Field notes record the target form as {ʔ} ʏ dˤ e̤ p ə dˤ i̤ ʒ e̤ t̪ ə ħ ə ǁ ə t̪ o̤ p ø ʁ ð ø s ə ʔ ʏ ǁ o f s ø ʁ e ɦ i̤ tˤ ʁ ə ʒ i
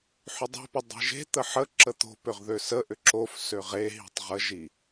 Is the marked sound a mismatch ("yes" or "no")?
yes